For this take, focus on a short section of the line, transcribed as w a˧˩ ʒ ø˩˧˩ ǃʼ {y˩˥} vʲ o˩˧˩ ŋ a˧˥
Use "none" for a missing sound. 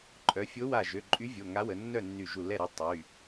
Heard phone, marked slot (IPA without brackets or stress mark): y˧˥